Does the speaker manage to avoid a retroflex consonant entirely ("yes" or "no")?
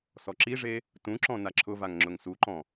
no